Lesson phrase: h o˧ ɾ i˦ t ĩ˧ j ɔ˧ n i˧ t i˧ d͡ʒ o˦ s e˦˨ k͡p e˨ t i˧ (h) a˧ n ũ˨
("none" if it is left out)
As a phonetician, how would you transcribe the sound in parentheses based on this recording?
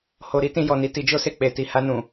h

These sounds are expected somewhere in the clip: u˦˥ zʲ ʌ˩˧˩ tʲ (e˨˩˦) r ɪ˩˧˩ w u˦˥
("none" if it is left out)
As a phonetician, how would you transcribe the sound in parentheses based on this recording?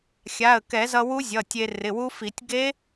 e˧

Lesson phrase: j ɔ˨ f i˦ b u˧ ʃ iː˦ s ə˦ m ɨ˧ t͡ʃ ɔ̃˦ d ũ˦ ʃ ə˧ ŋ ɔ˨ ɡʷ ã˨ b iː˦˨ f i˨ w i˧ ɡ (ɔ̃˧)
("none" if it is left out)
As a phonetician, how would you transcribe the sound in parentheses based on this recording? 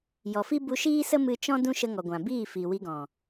ɔ̃˨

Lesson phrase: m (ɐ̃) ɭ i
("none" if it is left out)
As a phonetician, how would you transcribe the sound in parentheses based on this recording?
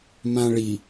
ã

